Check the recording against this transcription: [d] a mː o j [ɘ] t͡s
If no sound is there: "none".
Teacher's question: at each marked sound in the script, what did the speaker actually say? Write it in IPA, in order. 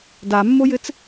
d, ɘ

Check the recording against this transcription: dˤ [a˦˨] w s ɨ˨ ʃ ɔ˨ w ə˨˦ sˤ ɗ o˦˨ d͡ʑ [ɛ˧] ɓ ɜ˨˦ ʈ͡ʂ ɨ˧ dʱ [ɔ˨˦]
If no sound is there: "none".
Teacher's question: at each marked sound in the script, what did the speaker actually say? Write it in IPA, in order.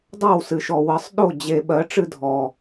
a˦˨, e˧, ɔ˨

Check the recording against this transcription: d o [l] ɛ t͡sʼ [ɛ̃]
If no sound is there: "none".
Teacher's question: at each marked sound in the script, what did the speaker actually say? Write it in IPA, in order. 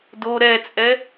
ɾ, ɛ

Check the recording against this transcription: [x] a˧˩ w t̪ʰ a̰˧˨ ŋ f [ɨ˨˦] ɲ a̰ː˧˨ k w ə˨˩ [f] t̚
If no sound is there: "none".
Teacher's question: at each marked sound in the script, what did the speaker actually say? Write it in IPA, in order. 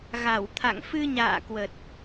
ɣ, ɨ˧, none

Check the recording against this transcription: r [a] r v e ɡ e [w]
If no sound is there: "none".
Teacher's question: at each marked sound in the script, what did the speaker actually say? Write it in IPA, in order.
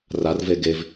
a, v

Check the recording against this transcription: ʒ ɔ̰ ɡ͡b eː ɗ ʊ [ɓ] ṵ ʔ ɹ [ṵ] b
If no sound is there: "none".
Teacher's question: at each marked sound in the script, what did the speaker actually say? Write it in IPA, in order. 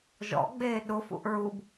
f, u

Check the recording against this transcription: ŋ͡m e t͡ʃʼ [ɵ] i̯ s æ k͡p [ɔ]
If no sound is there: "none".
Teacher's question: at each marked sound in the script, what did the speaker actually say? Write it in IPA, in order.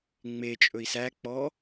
ɵ, ɔ

